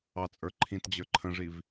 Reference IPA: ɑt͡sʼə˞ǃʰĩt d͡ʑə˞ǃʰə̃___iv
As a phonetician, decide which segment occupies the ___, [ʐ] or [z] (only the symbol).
ʐ